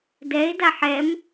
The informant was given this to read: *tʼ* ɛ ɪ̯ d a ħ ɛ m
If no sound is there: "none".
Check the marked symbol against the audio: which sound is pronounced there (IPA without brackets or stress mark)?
d